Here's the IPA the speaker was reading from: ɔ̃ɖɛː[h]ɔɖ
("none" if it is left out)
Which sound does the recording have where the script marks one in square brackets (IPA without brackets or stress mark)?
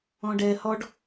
h